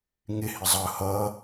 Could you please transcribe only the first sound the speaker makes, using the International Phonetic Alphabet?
ŋ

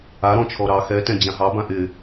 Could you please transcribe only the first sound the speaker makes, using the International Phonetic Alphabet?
a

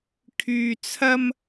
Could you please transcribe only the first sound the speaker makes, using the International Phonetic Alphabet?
kʰ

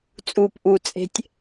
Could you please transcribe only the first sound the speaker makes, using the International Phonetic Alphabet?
t͡sʼ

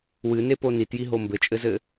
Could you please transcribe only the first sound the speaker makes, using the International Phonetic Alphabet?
w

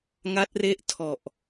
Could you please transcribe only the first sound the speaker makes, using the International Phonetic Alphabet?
ŋ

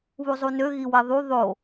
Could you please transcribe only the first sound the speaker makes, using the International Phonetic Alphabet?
β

